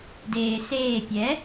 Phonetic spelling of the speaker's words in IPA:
deːseː pʲɛ

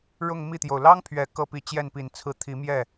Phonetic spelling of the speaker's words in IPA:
ɻʊ˥˧ŋmi˥˩t̪jo˩ʊ̯ lɑ˥ŋ pʰɥɛ˨˩kɤ˥˩pi˧˥ t͡ɕjɛ˥˩npi˨˩nt͡sʰɹ̩˥t̪ʰi˧˥ mjɛ˥˩

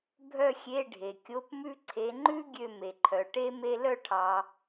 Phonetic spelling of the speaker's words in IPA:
bʱœ˥˧xʲe˧˥˧ ɖʱe˨kʲo˧˥˧pmʉ˥ ǀʰe˨˦ŋ͡ǃʉ˥ ɡʲø˥˧me˨ǃʰœ˨ ʈe˥ me˥ lœ˥˩ʈʰɑ˨

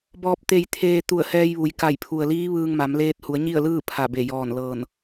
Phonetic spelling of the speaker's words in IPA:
bɔː˧p̚t̪e˧jt̪ʰeː˧ t̪u˧˩ə̯hɛː˧jʋu˩j ka˧˩j pʰu˩ə̯liː˧˥ʋɯː˧ŋma˩˧m leː˧t̚hu˩˧ə̯ɲi˥˨ə̯lɯː˥˨ pʰa˧˩be˧˩ jɔː˧˩n lɤː˧˩n

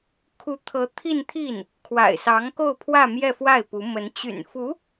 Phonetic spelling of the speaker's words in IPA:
kʰu˧˥t̪ʰɤ˧˥ t̪ʰi˥˧nt̪ʰi˥˩n | kʰwa̰˨˩ɪ̯sɑ˧˥ŋko˥˧ʊ̯ pʰwä˥˧mjɛ˥˧fwa˥˩ɪ̯pu˧˥ mə˧˥n t͡ɕy̰˨˩nfu˧˥

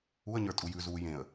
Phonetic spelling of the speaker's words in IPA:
uə̯ɲə˞ tʼujʉzuː jẽə̯

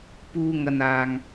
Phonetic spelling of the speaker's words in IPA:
puː˧ŋɐ˨n aː˨ŋ

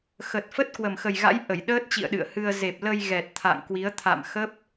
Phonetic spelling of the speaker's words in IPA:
xə˨˩t̚fə˦˥t̚ kwə˨˩mxə˨˩jɣa̰˧˥j ʔə˧˩jɗəː˦˥t̚t͡ɕḭ˧˨ə̯ ɗɨ̰˧˨ə̯hɨ˧ə̯ ze˨˩p̚lə˧jɣɛ˨˩t̚ t̪ʰa̰˧˨ŋkwi˨˦ə̯ t̪ʰa̰˧˨mxə˦˥p̚

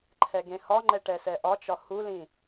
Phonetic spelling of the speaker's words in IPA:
ǃʰɛɡẽhɒŋ͡ǃɛ ʈɛsɛʔɒt͡ʃɒ hulĩ

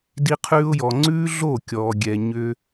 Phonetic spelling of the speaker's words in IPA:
di˧qʰʉː˧ʊ̯jɔ˨ ŋ͡ǀʉː˦ɮo˦˨kʲɔː˨ɡʲɛ˨ ɲʏː˧

